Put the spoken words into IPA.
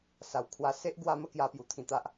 s a˨˩ w kʰ w a˧ s e˦ ʔ ɡ w a˦ m ə˦ k j a˧ p j u˨˩ t̪ʰ ĩ˧ t̪ a˦ ʔ

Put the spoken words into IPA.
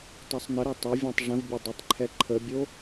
tˤ o sˤ n ə ɾ o tˤ ɐ vʲ ɔ̃ tˤ ʐ ə̃ v bʲ ɐ dˤ ɐ tˤ ǃʰ ɛ ǃʰ ə bʲ o

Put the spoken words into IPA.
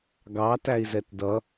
ɡ ɑ t æ i̯ z ɛ t d ʌ

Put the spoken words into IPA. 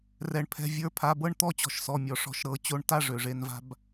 r ɛ˩ ɳ pʰ ɛ̤˩˧˩ vʲ ə˞˩˧˩ pʰ a˩˧˩ b ɤ˥˨ ɳ t̪ ɔ˥˨ t͡ɕ ɔ̤˩˧ ʃ s ɔ˩ mʲ ɔ˩ ʂ ɔ̤˩˧˩ ʃ ɾ ɤ˩˧ t͡ɕ o˧ ɳ t a˥˨ ʐ ø˩ ʐ e˩˧ n v a̤˧ b

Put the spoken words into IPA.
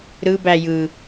ɾ ɯ b æ j ɯ

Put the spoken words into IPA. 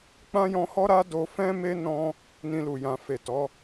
k͡p ã˦ j ɔ̃˧ h ɔ˦ ɾ a˦ d o˧ f ɛ̃˦ m e˦ n ɔ̃˦ | n ĩ˧ l u˨ j ã˨ f e˨ t ɔ˨˦

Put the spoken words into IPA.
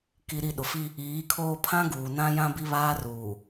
k i˨ ɾ i˨ ɗ ʊ˨ f i˦ | iː˨˦ kʰ oː˦ pʰ ã˦ ɡ uː˨ n ã˦ j ã˦ b i˦ β aː˦ r uː˨

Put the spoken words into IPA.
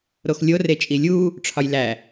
ɾ o x lʲ o r e t͡ʃʼ i lʲ u | ʈ͡ʂʰ ɒ j l æ

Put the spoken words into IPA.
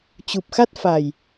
t͡ɕ u˨˩ p̚ x a˦˥ t̚ f a˨˩ j

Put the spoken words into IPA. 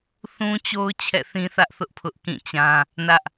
θ ũ˦ t͡ɕ o˦ ʊ̯ t͡ɕʰ ɛ̰˦˨ θ ĩ˦ θ ä˦ ʔ θ ʊ˦ ʔ pʰ ʊ˦ ʔ k ĩ˦˨ t͡ɕ ã˦ | n ä˦ ʔ

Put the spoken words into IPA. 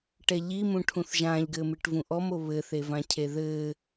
ʈ ɛ ʎ i m ũ ʈʰ ũ θ ʒ ãː ʎ ɡ ɘː m ɨ ʈ v ũ ʔ ɔ m o β ɘ θ e v ã cʰ e ð ɘː

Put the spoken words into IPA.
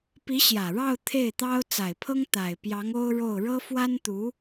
p i˧˥ ɕ j ä˨˩ ɻ ɑ˥˧ ʊ̯ t̪ʰ e˥˩ ɪ̯ t̪ ɑ˥ ʊ̯ t͡s a˨˩ ɪ̯ pʰ ɤ˥ ŋ t̪ a˨˩ ɪ̯ p j ɑ˧˥ ŋ o˥ ʊ̯ ɻ o˥˩ ʊ̯ ɻ ɤ˥ f w a˥ n t̪ u˧˥

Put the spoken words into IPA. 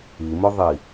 i m ʊ ðˤ i

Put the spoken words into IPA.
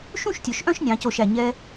ʃ ũ˥˧ ʃ tʲ ɵ˩˧ ʃ ʔ œ̃˥˧ ʃ nʲ ɑ̃˩˧ c o˧˩ ʃ æ˧˩ ɲ ɛ˧

